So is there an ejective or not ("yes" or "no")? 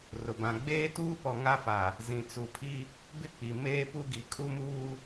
yes